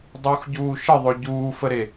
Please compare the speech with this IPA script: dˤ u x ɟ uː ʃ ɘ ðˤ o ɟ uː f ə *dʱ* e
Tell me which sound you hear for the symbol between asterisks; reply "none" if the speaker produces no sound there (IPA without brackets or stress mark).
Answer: ɾ